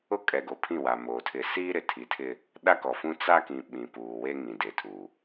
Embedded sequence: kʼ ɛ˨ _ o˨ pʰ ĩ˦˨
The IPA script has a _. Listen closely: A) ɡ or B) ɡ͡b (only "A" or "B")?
A